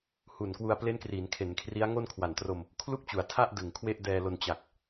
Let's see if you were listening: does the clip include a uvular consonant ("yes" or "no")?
no